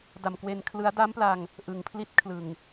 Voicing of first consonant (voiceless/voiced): voiced